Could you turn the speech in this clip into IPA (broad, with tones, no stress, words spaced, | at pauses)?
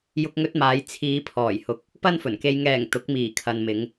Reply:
jʊ˧k̚ŋɵ˧t̚maː˨˧j t͡sʰiː˨˧pʰɔː˨˩jhʊ˨k̚ | pɐ˥nfɵ˨˩nke˧j ŋɛː˨˩ŋ t̪ʊ˨˥k̚miː˨˩kʰɐ˨nmɪ˨˧ŋ